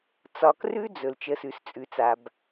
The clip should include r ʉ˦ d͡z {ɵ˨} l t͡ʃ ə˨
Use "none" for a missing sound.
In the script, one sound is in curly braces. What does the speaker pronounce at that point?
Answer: ɵ˨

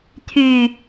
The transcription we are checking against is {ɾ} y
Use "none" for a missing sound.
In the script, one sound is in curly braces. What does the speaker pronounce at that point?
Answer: t̪ʰ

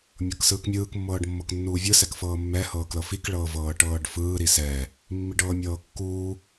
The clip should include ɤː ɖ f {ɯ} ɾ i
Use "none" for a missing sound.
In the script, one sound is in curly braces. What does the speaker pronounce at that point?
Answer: ɯː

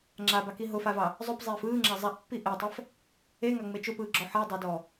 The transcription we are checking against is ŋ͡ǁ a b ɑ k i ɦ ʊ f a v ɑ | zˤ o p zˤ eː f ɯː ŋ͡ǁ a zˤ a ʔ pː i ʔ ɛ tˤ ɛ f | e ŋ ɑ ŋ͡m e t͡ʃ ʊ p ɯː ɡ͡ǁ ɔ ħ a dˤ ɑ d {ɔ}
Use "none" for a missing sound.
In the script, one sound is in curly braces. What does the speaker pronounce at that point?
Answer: ɔː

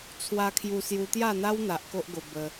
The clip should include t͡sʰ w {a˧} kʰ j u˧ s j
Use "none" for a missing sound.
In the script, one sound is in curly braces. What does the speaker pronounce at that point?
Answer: a˧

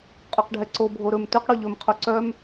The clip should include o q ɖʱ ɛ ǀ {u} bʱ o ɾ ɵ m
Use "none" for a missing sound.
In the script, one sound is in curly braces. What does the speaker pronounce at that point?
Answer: o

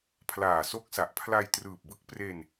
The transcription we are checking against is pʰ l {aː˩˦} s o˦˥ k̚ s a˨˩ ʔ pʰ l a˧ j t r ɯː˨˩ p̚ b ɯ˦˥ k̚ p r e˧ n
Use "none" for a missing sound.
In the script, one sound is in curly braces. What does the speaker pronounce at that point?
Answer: aː˨˩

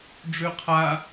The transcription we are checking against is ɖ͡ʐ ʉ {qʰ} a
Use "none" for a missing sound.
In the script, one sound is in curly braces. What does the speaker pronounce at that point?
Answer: qʰ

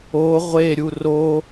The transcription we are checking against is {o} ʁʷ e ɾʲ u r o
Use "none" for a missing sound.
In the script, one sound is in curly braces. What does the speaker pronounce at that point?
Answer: o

